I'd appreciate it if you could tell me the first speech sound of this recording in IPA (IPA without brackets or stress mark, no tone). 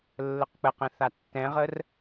lː